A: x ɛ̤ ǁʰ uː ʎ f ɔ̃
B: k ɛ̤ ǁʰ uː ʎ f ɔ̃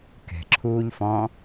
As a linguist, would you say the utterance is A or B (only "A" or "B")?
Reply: B